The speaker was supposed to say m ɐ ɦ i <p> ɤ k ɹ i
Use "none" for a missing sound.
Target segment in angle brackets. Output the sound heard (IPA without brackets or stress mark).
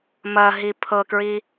pʰ